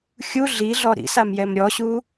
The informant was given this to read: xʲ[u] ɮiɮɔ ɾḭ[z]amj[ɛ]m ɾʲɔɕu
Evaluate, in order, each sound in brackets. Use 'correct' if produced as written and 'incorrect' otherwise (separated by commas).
correct, incorrect, correct